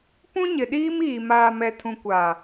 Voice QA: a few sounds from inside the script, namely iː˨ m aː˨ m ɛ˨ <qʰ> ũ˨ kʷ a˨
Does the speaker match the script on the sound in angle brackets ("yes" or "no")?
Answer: no